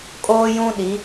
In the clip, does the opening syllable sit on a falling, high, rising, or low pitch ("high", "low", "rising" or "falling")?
high